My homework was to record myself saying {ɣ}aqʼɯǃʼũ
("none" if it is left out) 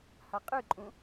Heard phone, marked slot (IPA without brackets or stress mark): h